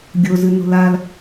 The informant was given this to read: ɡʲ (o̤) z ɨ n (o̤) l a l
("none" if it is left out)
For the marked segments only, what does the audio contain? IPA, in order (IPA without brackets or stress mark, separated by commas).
o, o̤